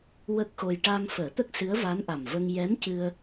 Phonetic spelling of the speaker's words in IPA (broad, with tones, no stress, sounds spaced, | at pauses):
w ə˦˥ k̚ x o˧ j ʈ aː˧ ŋ f əː˨˩˦ t̪ ə˦˥ k̚ s ɨ˧˥ ə̯ v a˧˥ n ʔ a˨˩ m v ə˧ ŋ j ɛ˧˥ m c ɨ˧ ə̯